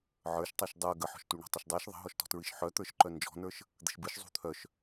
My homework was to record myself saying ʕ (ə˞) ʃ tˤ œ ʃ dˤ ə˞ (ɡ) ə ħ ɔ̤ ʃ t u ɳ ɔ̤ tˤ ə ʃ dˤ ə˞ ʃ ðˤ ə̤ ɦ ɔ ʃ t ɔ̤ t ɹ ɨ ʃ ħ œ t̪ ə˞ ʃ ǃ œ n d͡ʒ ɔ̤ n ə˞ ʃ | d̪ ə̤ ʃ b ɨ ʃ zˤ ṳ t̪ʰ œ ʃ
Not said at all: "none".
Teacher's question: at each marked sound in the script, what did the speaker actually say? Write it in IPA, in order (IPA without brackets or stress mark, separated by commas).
ə˞, ɡ